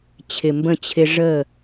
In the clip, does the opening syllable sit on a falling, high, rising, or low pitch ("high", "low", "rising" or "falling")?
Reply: low